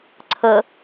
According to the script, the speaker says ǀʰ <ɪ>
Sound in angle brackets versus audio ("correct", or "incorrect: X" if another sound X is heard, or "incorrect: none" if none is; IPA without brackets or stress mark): incorrect: ə